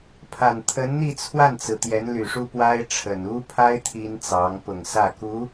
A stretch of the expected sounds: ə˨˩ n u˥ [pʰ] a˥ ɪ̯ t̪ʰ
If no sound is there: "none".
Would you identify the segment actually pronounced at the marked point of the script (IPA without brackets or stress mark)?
pʰ